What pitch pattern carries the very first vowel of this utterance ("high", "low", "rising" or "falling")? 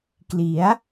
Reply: rising